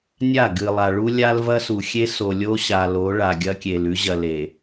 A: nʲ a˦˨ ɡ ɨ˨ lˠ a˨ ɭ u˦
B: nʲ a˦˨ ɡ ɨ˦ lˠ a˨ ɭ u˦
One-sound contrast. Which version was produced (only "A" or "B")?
A